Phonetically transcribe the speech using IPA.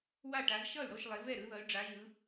w a˥˩ ʈ a˨˦ z ʃ ʌ˥˩ y̯ ɽ o˥˩ ʃ lˠ e˨˦ v ɛ˥˩ ɾ ɯ˨˦ ð ʌ˨˦ y̯ ɖ͡ʐ a˨˦ ʒ ɯ˨˦

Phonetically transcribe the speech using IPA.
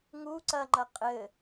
ŋ u ǀ ɐ ŋ͡ǃ ɐ qʼ ɘ

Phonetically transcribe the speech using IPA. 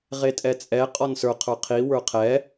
ʁ e tʼ ɛ t͡sʼ ɛ qʼ ɔ n s ə˞ qʰ ə˞ qʰ i w ə˞ qʰ ɛ

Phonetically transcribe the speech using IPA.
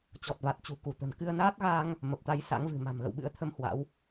t͡ɕ ɔ˨˩ t̚ v a˨˩ t̚ t͡ɕ ṳ˨˩ k u˧˩ t̪ ə̤˨˩ n k ɨ˧ ə̯ n aː˦˥ t̚ ɣ aː˧ ŋ | m ə˨˩ p̚ t̪ a˧ j s a̰˧˥ ŋ v ɨ̤˨˩ m a̤˨˩ m ɣ ə̰˧˨ w ɓ ɨ̰˧˥ ə̯ t̪ʰ ə˧ m h w a̰˧˥ w

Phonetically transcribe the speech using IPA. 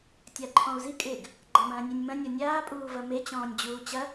tʲ a ǃʰ ɔ̃ u̯ z i kʼ ɪ ɡ | ɡ͡ǃ a m ɐ̃ː nʲ e nʲ m ɐ̃ nʲ ɔ nʲ aː pʼ uː v ɐ m e t͡ɕ ɔ̃ː nʲ d͡ʑ uː t͡ɕ ɐ

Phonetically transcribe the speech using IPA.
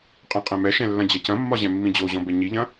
qʼ ɛ̃ qʼ ɛ̃ m ɛ ʃ ɛ̃ lː ɐ̃ d͡ʑ ɐ c ɐ̃ mː ɒ ʑ ɛ̃ mː ĩ d͡ʑ o ʑ ɔ̃ b ɛ ɲ i ʎ ɐ̃

